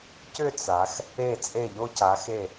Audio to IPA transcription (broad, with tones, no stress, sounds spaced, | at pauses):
c ʏ˥˧ t͡s a˩˧ x | e˧˩ t͡sʼ e˧˩ ʎ o˧ c a˩˧ x e˧˩